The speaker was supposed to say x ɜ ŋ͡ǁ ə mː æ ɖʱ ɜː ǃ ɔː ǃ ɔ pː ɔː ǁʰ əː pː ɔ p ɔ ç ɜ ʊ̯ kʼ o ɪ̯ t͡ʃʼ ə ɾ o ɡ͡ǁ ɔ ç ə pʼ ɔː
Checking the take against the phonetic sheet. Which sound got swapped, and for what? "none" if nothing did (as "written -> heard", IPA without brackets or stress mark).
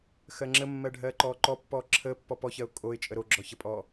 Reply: æ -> ɜ